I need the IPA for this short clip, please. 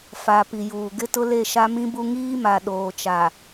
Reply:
f a˨ p i˨ j uː˨ ɡ ɪ˦ t ʊ˦ l e˦˨ ʃ a˦ m ĩ˦ b u˦ ŋ iː˦ m a˨ ɗ oː˨ t͡ʃ a˨

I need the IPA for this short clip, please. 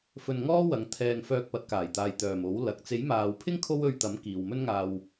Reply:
f ɵ˧ n ŋ ɔː˥ w ɐ˨˧ ŋ t̪ʰ ɛː˧ ŋ f œː˧ k̚ p ɐ˨˥ t̚ k aː˨˩ j t̪ aː˨ j t̪ œː˨˩ m o˨˥ w l ɐ˨ k̚ t͡s e˨˥ j m aː˨ w pʰ ɪ˥ ŋ kʰ o˥ w ɵ˧ ɥ t̪ ɐ˨˥ m k iː˨ w m ɵ˥ n ŋ aː˧ w

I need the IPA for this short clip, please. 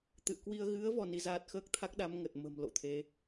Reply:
t̪ ɨ̰˧˨ ə̯ k w i˧ ə̯ ɣ ɨ˨˦ ə̯ v ɔ˧ n i˨˦ z aː˦˥ t̚ x əː˦˥ k̚ t̪ʰ a˦˥ k̚ ɗ a˨˦ m ŋ ə˨˩ t̚ m ə̤˨˩ m l o̰˧˨ t̪ʰ e˨˦

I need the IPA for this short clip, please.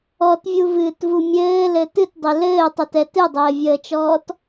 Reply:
ɔ t vʲ u v ɨː t v u mʲ ɘː l ɘ t ɨ t dˤ ɘ l ɘː tˤ œ t ɛ t ɨ dˤ ɘː vʲ əː t͡ʃ ɔː t

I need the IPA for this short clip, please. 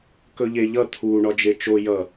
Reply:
k ɵ ʎ e ʎ ʌ t̪ʰ u ɳ ɒ d͡ʒ e t͡ʃ o j ʌ

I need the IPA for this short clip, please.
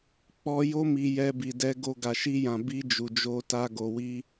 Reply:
k͡p ɔ˧ j o˧ m i˨ j ɛ˧ b i˨ d ɛ˧ ɡ o˧ ɡ a˨ ʃ i˧ j ã˨ b i˧ d͡ʒ u˨ d͡ʒ o˧ t a˧ ɡ o˨ w i˧

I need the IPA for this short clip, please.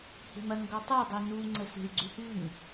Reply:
h e̤ m ɐ ŋ ɡ ɔ tˤ ɐ dˤ e n u ŋ͡ǀ ə s e̤ y̯ ɡ͡ǀ ʏ h ʉ ŋ

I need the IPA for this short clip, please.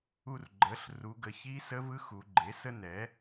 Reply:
u˧ r ɡ͡ǃ ə˩˧ ɬ r u˩˧ ɡ ə˩˧ ç i˦˥ s ə˦˥ v ɯ˦˥ x u˩˧ ɡ͡ǃ e˩˥ s ə˦˥ n ɛ˩˥

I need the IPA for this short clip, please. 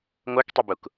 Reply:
ŋʷ œ k tˤ i b u k

